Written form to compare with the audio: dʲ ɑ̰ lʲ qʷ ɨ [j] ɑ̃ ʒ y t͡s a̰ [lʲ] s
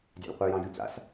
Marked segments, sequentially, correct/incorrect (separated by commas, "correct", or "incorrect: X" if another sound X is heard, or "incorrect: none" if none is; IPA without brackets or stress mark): correct, incorrect: none